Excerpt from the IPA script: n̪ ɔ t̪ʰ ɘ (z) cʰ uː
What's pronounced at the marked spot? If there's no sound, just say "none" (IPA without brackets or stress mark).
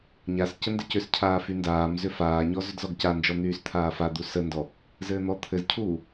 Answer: z